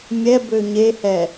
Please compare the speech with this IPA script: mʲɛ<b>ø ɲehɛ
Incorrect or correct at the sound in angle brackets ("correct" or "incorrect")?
correct